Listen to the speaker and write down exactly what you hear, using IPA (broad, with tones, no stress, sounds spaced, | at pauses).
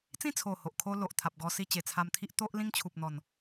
t͡s ĩ˥˧ t͡sʰ o˨˩ h o˨ ʔ kʰ o˦ l o˨ ʔ t̪ʰ a˨ p̚ ɡ ɔ˧ s i˧ t͡ɕ e˨˩ t͡sʰ a˧ m t̪ʰ i˦ ʔ t̪ o˦ ʔ l ĩ˦ ŋ t͡ɕʰ u˨ p̚ n̪ ɔ˨˩ n